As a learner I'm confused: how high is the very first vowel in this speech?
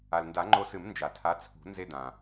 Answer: low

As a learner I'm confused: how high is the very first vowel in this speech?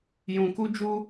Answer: high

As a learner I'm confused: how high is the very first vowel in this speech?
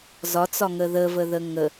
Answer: low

